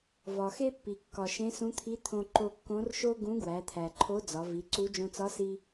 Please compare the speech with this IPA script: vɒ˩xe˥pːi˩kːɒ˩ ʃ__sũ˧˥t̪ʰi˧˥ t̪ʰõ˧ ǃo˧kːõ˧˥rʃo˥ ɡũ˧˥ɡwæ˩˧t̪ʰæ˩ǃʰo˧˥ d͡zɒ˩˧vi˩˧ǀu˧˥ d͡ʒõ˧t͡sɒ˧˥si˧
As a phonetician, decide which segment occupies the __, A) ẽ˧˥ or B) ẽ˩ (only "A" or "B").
A